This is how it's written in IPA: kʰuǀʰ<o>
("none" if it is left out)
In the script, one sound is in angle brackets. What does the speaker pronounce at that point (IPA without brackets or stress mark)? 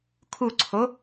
o